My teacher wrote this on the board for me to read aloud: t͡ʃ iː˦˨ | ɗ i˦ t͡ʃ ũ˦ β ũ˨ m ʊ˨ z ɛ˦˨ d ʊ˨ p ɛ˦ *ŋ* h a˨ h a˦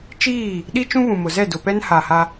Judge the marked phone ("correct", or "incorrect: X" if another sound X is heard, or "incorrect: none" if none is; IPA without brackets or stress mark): incorrect: n